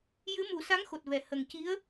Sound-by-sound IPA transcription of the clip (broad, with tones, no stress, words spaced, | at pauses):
jɨ˧˥mu˨˩˦sa˧˥ŋ xo˨˩t̚vɛ˨˩˨ hə˨˩ŋ ci˧˥ə̯